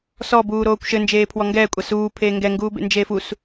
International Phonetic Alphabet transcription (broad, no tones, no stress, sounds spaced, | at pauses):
s ɔ b uː ɾ oː kʷ ʃ ɘ n d͡ʒ eː pʰ w ɔ ŋ ɡ ɛː kʷʼ a s uː pʰ eː ŋ ɡ ɛ ŋ ɡ uː b ḛ n d͡ʒ eː f u s